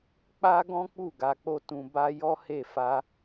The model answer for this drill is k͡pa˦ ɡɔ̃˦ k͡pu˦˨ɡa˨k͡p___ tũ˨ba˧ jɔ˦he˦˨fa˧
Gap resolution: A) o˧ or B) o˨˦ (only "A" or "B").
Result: A